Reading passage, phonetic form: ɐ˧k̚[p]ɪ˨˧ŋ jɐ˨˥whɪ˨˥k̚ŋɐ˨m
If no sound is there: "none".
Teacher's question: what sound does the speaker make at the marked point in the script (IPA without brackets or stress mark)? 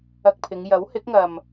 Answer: pʰ